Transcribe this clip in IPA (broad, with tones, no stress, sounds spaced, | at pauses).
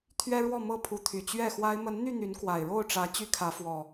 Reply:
t̪ʰ ɥ ɛ˦ ɻ w ɔ˥˨ m ɤ˥˨ pʰ u˨˦ t̪ʰ y˨˩ t͡ɕ ɥ ɛ˥˨ x w a˦ ɪ̯ m ə˨˦ n n̪ y˥˨ n̪ y˨˦ n k w a˨˩ ɪ̯ ɻ o˥˨ ʊ̯ ʈ͡ʂ ä˨˦ t͡ɕ y˦ kʰ ä˨˦ f w ɔ˨˩